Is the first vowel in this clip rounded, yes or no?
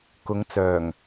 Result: yes